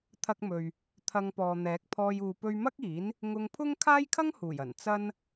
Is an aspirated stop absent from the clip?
no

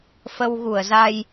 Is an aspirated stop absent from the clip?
yes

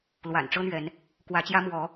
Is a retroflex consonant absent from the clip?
no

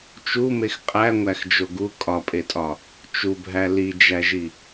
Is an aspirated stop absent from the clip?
yes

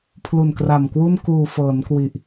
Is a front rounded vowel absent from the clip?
yes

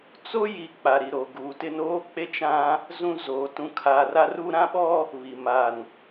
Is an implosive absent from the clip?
no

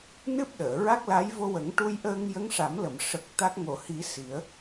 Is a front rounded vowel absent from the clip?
yes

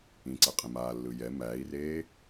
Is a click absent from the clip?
no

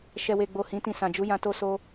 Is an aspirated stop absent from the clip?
yes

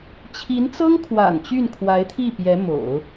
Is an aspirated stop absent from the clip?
no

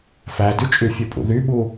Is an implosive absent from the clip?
no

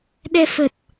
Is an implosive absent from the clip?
no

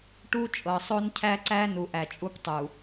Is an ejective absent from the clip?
no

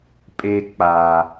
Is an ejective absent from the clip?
no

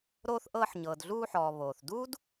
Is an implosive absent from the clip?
yes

